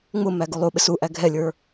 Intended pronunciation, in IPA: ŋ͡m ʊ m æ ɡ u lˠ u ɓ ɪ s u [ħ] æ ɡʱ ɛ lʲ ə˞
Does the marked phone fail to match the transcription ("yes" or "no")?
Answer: yes